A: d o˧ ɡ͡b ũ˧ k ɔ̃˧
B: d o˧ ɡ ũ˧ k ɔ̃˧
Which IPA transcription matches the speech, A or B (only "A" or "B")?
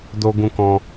B